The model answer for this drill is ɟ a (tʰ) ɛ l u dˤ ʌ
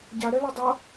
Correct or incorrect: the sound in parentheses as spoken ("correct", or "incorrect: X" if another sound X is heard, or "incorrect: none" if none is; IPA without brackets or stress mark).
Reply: incorrect: ɾ